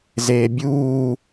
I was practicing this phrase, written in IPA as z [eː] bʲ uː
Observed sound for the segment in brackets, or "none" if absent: eː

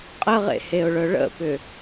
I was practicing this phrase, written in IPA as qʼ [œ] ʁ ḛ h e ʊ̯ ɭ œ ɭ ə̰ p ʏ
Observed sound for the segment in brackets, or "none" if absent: ə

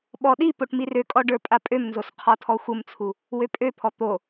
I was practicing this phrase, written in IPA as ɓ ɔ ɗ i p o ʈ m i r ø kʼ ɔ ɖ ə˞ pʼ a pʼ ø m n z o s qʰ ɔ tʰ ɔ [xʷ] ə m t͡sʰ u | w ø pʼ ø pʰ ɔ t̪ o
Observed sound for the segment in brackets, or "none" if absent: xʷ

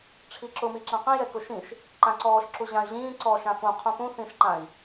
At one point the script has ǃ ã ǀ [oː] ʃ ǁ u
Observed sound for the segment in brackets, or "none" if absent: ɔː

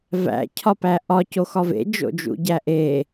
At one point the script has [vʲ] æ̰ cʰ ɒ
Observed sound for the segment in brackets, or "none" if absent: v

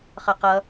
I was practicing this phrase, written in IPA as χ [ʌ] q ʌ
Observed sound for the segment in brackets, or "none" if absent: ʌ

